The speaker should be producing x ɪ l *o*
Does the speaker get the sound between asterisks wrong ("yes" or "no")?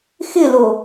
no